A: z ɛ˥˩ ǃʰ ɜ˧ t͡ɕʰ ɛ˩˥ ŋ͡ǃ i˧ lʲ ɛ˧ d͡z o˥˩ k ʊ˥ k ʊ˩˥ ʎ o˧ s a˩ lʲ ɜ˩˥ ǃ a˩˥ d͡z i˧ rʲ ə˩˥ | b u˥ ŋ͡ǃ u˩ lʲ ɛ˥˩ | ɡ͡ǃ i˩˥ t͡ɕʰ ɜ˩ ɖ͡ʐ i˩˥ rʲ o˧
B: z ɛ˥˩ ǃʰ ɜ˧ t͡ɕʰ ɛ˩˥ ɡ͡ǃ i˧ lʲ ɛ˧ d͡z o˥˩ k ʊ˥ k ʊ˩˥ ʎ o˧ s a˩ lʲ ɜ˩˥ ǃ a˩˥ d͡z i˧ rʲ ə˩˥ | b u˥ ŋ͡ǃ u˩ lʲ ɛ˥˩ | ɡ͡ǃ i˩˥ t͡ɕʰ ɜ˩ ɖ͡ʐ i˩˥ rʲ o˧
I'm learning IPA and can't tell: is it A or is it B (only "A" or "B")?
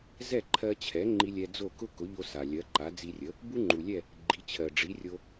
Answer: A